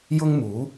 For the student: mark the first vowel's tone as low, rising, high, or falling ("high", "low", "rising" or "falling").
high